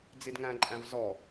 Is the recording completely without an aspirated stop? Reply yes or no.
yes